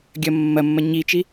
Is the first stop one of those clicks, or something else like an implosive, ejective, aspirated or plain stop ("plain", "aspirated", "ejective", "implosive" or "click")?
plain